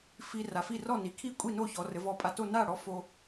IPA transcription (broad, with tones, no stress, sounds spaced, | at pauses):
f i˧ r a˩˧ f i˥˩ r ɔ˥˩ n i˩˧ kʰ i˥˩ kʷʼ i˥˩ n o˥˩ ç ɔ˩˧ r ɘ˩˧ v ɔ˧˩ pʼ a˧˩ t o˥˩ n a˥˩ ɽ ɔ˧ f o˧